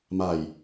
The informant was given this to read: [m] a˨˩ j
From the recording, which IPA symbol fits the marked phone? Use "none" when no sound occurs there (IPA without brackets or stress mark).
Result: m